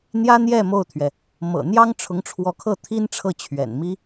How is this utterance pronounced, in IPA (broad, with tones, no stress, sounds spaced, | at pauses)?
n̪ j ä˥ n̪ j ɛ˥˧ m o˥˩ ʊ̯ t̪ʰ ɥ ɛ˩ | m ɤ̰˨˩ n̪ j ɑ˥ ŋ ʈ͡ʂʰ ʊ˧˥ ŋ ʈ͡ʂʰ w ɔ˧˥ kʰ ɤ˥˩ t̪ʰ i˥ n ʈ͡ʂʰ ɤ˥˩ t͡ɕʰ ɥ ɛ̰˨˩ n m i˥